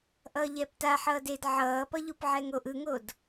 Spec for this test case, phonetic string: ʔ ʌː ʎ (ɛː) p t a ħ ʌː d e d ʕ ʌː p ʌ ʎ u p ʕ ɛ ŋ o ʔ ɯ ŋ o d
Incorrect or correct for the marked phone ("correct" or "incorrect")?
correct